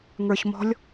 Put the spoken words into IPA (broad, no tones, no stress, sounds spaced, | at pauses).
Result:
ŋ ə˞ ç m ɔ̤ lʲ